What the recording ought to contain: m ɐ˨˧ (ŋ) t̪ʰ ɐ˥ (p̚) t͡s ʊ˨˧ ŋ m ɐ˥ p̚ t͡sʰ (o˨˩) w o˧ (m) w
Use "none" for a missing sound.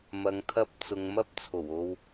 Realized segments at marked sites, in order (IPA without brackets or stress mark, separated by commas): ŋ, p̚, o˨˩, none